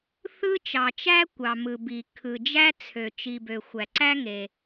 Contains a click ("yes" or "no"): yes